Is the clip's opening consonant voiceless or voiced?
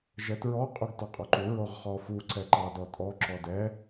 voiced